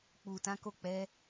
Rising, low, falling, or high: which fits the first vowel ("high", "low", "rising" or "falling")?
low